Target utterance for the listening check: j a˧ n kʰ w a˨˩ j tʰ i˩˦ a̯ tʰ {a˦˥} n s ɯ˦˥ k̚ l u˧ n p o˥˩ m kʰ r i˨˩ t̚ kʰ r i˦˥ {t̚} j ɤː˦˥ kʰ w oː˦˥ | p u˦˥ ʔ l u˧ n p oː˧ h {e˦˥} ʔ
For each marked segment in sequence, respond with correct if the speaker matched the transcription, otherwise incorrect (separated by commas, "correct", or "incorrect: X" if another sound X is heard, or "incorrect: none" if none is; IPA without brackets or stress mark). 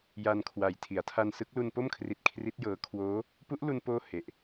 incorrect: a˧, correct, incorrect: e˨˩